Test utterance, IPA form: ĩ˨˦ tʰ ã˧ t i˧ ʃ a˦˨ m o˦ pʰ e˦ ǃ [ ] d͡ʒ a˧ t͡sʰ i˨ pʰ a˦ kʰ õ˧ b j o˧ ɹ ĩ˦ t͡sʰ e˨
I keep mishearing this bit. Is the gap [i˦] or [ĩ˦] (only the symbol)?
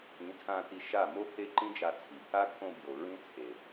ĩ˦